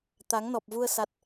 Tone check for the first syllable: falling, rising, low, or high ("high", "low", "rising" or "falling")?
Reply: rising